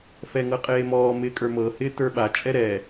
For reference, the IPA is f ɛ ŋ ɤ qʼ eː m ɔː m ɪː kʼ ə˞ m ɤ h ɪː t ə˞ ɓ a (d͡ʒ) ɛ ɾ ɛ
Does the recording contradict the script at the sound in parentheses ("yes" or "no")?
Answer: yes